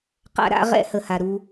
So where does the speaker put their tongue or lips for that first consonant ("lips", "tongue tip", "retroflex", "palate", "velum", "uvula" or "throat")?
uvula